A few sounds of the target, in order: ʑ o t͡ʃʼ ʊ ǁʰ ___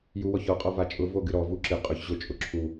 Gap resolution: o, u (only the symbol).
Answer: u